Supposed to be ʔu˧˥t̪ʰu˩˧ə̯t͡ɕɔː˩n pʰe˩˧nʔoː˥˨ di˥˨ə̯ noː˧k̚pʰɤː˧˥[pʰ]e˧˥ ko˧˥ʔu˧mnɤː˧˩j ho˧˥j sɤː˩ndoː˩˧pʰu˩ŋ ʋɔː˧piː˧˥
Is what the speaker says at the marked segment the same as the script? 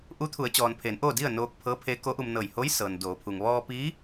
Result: yes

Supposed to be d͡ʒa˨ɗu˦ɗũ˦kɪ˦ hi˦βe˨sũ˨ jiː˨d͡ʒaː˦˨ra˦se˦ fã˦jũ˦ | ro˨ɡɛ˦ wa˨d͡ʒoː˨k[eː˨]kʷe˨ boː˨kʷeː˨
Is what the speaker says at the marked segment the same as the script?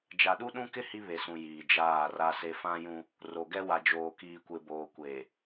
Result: no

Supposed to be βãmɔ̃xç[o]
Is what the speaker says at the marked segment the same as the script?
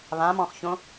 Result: no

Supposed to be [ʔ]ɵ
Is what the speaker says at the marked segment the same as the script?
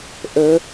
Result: yes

